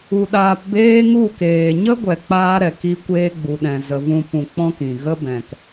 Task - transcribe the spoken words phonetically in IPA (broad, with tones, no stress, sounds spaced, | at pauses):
u˧ ɗ aː˧ p b eː˦ ŋ u˦˨ k eː˨ ɲ ə˦ ɡʷ ɛ˧ k͡p aː˦ ɾ ɛ˨ k i˦ kʷ eː˦ ɡ͡b u˨ ɗ ɛ̃˨ z ə˨ v ũ˧ p ũ˧ k͡p ɔ̃˦ k ĩ˨ ɣ ə˦ b ɛ̃˨ k